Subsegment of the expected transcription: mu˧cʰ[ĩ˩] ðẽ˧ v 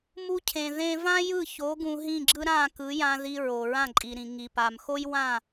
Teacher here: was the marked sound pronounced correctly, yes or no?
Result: no